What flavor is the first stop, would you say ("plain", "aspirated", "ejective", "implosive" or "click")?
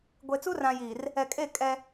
plain